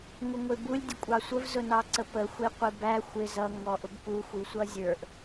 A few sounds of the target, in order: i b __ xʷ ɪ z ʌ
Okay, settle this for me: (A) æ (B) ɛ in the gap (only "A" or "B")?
A